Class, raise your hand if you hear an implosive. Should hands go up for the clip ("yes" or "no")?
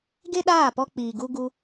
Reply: yes